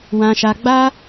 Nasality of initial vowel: nasal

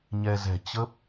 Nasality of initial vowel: oral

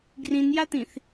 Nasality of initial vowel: nasal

